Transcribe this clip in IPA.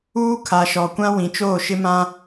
uː˦ kʰ a˨ ʃ ɔ˨ kʷ ã˦ w ĩ˨ t͡ʃ oː˦˨ ʃ ɪ˦ m ã˦

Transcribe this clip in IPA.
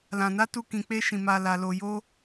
l ã˨ n a˨˦ t u˧ k ĩ˧ k͡p e˦ ʃ ĩ˧ m a˧ l a˧ l o˧ j o˦

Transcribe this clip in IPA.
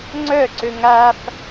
ŋ͡ǀ œ ǀ ø ŋ a f

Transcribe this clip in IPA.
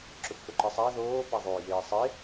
ǁ ɵ p f ɵ ǃ i sˤ a ð oː p a ðˤ oː j eː sˤ e

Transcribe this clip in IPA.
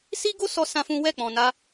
s i˦ ɡ o˦ s ɔ˧ s ã˦ f ũ˦ w ɛ˦˨ k͡p ɔ̃˨ n a˧

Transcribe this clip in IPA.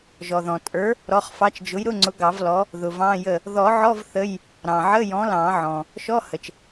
ʒ ɔ˩ ð ɔ̃˩ tʼ ə˞˨˥ | ɾ ɔ˩˧˩ χ f ɑ˨˥ t͡ʃ d͡ʒ ʊ˨˥ j ɾ ʊ˧˥˧ ŋ͡ǀ ʊ˨˥ ɡ ɑ˨˩˦ v l ɔ˨˥ | ð ʊ˩ v ɑ̃˧˥˧ j ə˥˩ | ð ɔ˨˩˦ ʕ ɔ˧˥˧ v θ ə˧˥˧ j | ɾ ɑ̃˩ ʕ ə˧˥˧ j ɔ̃˨˥ l ɑ̃˨˩˦ ʕ ɔ̃˩ | ʃ ɔ˧˥˧ h ə˩ t͡ʃ

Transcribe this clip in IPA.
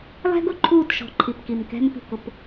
lˠ ɛ̤˦ ɡ ʊ˨ ǃʰ uː˦˨ t ʃ ɔ̤˨ ǃʰ i˨ p k i˨ m k ɛ̤˦ m p i̤˨ k ʊ˨ p

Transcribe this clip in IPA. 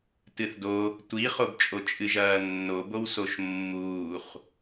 t ɨ θ d o | tʷ i χ o b t͡ʃʼ o t͡ʃʼ ɨ ʒ ɐː nː o b o w s o ʃ mː uː χ

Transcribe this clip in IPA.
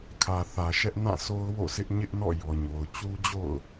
kʰ ä˨ θ ä˨ ʃ ɛ˦ ʔ n ã˦˨ sʰ o˦ ʊ̯ w o̰˦˨ s ɪ˦ ʔ ɲ ɪ˦ ʔ n ɔ̰˦˨ j ɔ˨ ɲ o˨ ʊ̯ t͡ɕ u˦ d͡ʑ o̰˦˨ ʊ̯

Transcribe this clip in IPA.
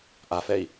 ʔ a f ɛ i̯

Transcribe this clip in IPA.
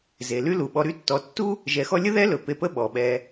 z e˩ l y˥ l u˩ ɓ ɔ˨ ɾ y˦ tː ɔ˨ tː u˥ | ʒ ɛ˨ x ɔ˦ lʲ ə˥ ð ɛ˥ l ɵ˩ p e˨ p ə˦ ɓ ɔ˩ ɓ ɛ˨

